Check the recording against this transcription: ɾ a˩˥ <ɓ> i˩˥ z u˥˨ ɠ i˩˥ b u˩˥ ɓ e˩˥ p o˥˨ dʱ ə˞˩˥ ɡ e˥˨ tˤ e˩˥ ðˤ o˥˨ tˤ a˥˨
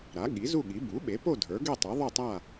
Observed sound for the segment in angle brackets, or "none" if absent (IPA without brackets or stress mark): ɠ